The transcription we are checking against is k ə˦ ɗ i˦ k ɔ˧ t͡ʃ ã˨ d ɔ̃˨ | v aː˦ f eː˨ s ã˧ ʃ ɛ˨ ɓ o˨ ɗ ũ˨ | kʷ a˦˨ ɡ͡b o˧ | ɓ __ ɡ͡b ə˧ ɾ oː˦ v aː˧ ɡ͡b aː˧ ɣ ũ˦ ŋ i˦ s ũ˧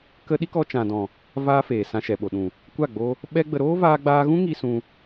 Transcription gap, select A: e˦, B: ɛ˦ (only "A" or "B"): B